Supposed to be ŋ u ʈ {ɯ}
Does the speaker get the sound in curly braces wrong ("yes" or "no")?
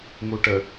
yes